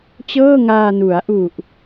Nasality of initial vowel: oral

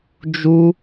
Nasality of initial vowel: oral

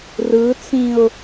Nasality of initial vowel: oral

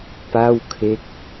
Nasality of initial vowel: oral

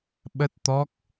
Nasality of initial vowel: oral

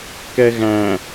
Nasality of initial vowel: oral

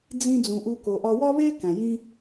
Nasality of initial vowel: nasal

